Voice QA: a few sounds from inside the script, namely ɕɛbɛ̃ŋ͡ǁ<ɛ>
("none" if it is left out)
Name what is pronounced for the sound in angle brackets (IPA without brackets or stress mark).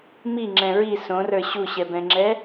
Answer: ɛ